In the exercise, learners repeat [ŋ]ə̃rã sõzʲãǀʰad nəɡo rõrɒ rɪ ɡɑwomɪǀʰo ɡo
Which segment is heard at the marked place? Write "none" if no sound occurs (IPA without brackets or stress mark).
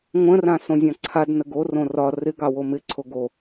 ŋʷ